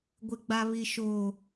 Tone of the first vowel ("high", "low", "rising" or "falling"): high